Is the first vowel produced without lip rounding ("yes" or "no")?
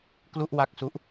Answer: no